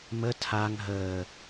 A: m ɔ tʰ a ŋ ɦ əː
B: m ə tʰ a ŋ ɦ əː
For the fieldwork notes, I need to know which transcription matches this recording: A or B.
B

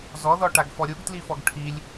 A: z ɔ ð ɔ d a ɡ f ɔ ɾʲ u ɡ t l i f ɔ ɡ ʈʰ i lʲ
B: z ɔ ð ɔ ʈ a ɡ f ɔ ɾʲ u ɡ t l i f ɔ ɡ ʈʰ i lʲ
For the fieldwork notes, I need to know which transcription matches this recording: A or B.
B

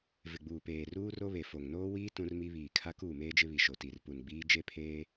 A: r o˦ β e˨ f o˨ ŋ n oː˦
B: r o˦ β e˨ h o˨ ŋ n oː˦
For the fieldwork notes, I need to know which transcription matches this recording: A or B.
A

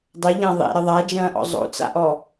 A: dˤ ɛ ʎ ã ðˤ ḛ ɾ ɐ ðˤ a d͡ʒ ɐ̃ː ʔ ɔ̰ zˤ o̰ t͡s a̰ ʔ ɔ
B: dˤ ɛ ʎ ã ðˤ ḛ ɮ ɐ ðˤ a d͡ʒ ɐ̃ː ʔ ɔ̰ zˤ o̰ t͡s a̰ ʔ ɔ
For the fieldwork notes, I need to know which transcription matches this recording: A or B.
A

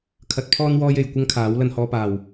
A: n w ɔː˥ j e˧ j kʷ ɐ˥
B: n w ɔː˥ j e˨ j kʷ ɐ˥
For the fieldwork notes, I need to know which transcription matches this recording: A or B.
B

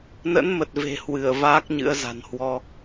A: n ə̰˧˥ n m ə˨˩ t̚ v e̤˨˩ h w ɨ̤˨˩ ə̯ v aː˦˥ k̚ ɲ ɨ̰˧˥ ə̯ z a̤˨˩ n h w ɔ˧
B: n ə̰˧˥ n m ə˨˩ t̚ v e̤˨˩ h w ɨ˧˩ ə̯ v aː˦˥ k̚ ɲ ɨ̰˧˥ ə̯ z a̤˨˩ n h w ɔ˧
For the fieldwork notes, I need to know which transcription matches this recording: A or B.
B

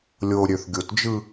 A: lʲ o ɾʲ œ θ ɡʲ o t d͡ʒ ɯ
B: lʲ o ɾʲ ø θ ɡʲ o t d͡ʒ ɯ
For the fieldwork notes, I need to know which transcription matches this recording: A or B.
B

